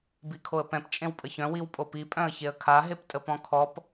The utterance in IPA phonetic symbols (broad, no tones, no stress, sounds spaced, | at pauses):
b i kʰ o ə̯ p ɛ̃ p t͡ʃʼ ẽ w pʼ ə ç œ̃ w i w pʼ o p i pʼ œ̃ ə̯ ç e ə̯ kʰ a ɦ e p tʼ ə p ɔ̃ kʰ ɔ p